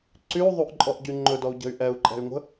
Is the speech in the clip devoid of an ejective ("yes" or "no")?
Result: no